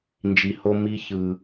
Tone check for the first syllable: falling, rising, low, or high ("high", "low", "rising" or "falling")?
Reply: low